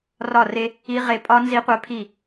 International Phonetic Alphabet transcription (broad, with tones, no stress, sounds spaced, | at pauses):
r ɒ˥˨ r e˦˥ | i˦˥ ʁ e˦˥ pʼ ɒ˦˥ n z i˦˥ qʷ œ˦˥ pʰ i˥˨